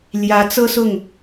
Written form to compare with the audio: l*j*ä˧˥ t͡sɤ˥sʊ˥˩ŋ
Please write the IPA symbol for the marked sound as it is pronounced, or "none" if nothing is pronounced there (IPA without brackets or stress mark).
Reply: j